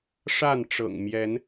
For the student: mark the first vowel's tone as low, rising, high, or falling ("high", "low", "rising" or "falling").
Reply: falling